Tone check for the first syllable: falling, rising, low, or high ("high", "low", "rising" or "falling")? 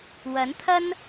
rising